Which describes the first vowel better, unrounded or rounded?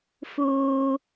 rounded